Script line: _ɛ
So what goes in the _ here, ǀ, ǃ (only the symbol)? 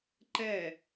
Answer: ǃ